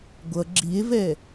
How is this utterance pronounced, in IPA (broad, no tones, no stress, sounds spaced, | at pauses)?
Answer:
ɡʷ ʌ ɡ͡ǁ i e̯ v ɛ